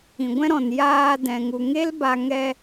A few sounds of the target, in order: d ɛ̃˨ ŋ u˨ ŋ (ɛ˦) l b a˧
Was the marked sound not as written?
yes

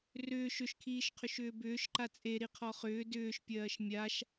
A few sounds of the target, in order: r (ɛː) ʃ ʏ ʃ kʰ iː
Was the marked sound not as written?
yes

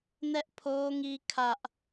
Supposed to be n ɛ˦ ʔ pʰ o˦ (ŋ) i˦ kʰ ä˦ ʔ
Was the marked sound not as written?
no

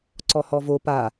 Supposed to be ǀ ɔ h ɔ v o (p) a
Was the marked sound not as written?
no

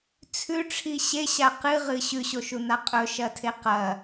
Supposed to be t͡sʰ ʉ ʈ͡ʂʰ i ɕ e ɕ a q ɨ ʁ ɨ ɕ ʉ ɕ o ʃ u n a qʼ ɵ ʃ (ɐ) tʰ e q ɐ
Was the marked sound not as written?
no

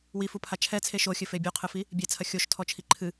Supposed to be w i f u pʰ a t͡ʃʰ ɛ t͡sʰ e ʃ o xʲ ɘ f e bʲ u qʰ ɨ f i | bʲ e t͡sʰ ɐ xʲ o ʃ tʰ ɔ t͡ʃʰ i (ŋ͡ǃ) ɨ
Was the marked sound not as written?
yes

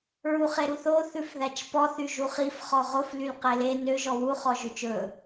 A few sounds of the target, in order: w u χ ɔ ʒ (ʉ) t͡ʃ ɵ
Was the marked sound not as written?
no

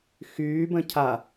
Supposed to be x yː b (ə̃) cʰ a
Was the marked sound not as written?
no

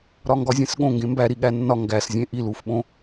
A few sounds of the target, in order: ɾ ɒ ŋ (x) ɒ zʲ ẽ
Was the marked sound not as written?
yes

